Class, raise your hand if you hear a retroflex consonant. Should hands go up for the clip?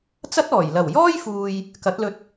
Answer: no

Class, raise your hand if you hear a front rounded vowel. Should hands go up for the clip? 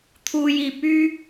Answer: yes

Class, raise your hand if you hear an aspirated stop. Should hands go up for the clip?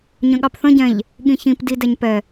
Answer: no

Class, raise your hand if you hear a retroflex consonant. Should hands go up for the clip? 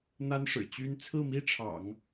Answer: yes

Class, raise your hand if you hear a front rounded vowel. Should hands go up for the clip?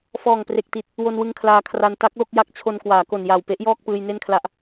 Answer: no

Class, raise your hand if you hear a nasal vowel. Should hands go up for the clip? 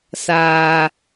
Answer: no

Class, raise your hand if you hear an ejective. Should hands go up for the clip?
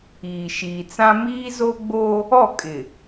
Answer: yes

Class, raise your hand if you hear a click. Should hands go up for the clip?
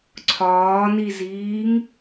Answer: yes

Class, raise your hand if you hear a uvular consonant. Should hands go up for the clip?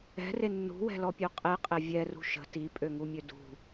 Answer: yes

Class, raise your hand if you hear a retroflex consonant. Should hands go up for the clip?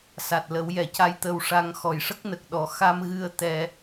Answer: yes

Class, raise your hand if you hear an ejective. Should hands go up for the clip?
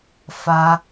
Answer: no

